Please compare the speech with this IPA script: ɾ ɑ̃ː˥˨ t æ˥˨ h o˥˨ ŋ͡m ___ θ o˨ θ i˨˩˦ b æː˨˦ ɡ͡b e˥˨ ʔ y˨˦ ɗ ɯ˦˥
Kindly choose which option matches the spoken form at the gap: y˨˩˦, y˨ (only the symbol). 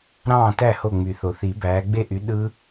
y˨˩˦